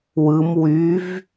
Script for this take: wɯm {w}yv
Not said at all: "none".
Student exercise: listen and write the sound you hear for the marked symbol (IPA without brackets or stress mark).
w